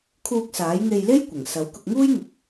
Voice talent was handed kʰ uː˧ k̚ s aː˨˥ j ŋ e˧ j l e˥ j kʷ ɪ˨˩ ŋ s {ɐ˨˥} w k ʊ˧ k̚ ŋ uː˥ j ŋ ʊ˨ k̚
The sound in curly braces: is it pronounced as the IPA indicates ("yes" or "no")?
yes